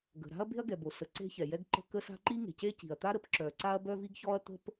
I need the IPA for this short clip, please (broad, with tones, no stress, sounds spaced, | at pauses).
ɡ ə̤˩ ɾ a̤˥ ɐ̯ b e̤˥ ɐ̯ ɡ ɛ˩ b o˩ s ə˩ ǀ e̤˥ ç ɛ˩ j ɛ˥ ɡ ǃ ə̤˥ k ə˥ s a̤˥ ǃ i˥ ŋ e̤˩ c e˥ c i̤˩ ɐ̯ t̪ a˥ ɾ ə˥ p ǁ œ˩ ǀ a˥ ɐ̯ b œ˥ v i˥ ɡ ç ɔ˥ ɐ̯ t̪ ə̤˥ p